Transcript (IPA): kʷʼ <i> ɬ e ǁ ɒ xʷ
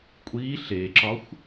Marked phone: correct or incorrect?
correct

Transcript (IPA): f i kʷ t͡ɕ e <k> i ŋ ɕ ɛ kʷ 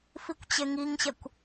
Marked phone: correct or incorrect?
incorrect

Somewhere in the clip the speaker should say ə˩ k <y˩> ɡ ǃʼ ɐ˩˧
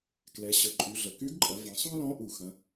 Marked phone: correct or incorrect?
incorrect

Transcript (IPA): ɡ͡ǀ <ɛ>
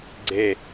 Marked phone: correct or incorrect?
incorrect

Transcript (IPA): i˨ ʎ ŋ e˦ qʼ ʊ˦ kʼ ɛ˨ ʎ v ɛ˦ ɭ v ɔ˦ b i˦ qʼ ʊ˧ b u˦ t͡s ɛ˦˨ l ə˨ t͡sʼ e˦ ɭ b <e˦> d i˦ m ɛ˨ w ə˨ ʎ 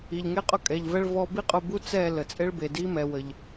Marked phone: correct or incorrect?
incorrect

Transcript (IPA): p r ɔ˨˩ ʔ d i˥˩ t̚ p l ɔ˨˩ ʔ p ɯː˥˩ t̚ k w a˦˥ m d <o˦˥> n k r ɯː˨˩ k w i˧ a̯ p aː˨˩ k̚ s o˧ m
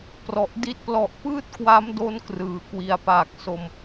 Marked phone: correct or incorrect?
correct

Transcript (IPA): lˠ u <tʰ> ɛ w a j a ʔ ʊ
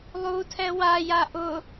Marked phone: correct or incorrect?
correct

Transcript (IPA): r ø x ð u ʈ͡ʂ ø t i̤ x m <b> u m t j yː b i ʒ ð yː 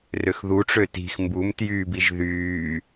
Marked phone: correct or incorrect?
correct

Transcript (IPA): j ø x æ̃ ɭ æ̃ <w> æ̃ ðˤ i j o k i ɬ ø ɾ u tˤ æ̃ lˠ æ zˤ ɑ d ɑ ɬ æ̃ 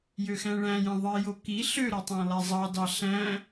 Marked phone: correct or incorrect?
incorrect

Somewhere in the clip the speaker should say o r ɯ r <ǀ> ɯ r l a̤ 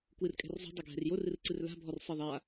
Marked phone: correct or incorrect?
correct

